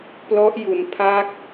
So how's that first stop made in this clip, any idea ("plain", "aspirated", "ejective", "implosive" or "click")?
plain